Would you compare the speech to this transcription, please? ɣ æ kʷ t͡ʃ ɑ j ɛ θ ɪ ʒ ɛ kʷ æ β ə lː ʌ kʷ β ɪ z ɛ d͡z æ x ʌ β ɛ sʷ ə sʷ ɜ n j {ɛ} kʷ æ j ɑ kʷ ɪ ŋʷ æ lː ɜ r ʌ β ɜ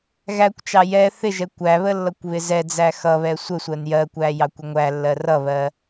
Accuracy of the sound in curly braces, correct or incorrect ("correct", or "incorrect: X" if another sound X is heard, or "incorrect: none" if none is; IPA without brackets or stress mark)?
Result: incorrect: ɜ